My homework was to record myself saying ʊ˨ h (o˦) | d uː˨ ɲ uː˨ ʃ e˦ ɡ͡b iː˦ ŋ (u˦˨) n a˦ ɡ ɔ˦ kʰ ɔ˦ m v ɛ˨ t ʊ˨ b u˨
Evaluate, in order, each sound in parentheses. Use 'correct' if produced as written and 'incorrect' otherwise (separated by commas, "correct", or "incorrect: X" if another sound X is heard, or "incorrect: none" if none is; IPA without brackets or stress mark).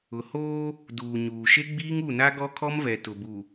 incorrect: oː˦, correct